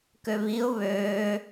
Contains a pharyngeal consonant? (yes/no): no